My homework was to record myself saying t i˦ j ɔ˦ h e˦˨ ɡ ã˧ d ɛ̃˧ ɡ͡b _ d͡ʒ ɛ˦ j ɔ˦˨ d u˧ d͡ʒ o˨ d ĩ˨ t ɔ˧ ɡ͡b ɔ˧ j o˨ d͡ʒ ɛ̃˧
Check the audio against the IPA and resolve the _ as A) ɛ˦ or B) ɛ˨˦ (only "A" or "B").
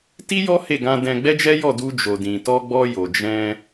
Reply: A